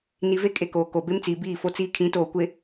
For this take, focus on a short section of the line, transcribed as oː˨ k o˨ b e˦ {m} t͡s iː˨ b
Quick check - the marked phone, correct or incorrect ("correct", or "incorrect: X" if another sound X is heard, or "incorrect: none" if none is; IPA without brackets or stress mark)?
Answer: correct